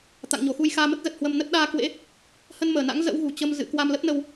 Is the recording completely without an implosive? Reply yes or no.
no